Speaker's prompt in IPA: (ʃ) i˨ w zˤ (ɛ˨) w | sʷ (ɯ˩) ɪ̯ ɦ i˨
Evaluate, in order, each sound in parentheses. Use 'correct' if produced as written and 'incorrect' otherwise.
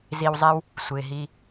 incorrect: z, incorrect: ɛ˦, correct

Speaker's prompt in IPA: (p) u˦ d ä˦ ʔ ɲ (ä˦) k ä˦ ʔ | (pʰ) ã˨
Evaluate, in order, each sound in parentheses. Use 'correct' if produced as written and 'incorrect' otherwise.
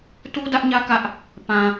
incorrect: t, correct, incorrect: p

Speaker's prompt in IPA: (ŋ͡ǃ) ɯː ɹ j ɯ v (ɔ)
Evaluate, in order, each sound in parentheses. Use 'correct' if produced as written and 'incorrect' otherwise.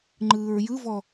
correct, correct

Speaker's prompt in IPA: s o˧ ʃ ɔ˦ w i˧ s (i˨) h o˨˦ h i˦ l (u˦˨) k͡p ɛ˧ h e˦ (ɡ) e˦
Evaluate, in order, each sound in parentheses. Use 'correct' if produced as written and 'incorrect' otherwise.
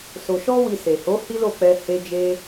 incorrect: e˨, incorrect: o˦˨, incorrect: d͡ʒ

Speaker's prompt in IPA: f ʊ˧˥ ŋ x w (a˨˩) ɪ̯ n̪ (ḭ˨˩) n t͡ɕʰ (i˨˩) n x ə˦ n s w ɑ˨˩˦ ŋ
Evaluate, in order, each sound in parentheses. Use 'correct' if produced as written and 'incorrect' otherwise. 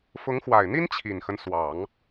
correct, incorrect: i˥, correct

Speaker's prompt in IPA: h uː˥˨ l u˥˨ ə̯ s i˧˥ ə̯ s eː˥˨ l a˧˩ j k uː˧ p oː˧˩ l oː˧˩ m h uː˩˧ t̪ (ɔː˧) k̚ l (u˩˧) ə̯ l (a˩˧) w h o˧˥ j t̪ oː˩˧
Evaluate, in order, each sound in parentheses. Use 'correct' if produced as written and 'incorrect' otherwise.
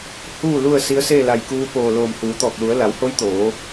incorrect: ɔː˧˩, correct, correct

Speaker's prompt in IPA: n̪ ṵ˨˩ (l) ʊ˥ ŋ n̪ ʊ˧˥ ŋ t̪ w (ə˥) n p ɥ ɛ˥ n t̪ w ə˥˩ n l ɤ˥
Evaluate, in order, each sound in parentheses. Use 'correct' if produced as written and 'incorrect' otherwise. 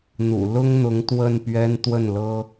correct, incorrect: ə˥˩

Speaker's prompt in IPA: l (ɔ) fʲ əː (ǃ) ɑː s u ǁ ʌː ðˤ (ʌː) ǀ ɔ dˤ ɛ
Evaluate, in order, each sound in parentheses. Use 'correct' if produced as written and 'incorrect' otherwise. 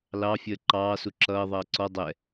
incorrect: ɑ, correct, correct

